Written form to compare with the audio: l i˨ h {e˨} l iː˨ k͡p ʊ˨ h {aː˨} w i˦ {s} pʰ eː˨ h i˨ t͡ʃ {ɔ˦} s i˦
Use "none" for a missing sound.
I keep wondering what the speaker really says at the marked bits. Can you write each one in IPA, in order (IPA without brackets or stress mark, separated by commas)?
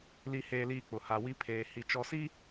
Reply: eː˨, a˨, none, ɔ˨